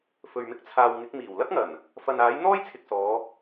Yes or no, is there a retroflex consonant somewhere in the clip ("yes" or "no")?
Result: no